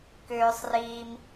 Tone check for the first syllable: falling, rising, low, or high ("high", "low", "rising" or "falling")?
low